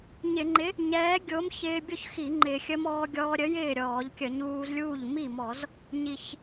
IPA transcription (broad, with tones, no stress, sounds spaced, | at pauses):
ɲ ɪ˧˩˧ ŋ͡ǃ ɪ˨˥ | ɲ ɛː˨˥ ɡʲ o˨˥ m ç ɪː˧ bʲ o˥˩ ç x i˧˩˧ ŋ͡ǃ ɪ˨˩ xʲ ə˧ m ɔː˧ ɡʲ ɔː˧ ɾʲ ə˨˥ j ɪː˥˩ ɾʲ ɔː˧˩˧ ʎ kʲ ə˧˩˧ ɲ uː˧ z lʲ uː˥˩ ʎ m i˥˩ m ɔ˧˩˧ z | ɲ i˨˩ ç